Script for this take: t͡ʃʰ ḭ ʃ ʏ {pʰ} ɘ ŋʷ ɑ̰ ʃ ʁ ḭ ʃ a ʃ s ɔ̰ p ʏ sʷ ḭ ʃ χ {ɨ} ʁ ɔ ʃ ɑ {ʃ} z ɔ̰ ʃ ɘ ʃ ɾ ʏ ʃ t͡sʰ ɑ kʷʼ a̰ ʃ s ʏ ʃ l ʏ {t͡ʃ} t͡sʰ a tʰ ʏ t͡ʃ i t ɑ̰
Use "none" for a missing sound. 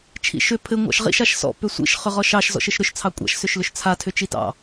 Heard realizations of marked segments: pʰ, ʏ, ʃ, ʃ

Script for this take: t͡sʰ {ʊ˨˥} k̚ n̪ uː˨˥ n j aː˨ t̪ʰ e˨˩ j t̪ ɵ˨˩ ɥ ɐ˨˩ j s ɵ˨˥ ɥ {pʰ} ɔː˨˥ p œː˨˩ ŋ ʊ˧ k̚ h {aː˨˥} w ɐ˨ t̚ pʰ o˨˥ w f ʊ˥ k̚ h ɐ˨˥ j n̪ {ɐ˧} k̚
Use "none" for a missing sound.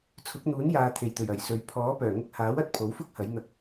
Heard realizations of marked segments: ʊ˨˥, pʰ, aː˨˥, ɐ˧

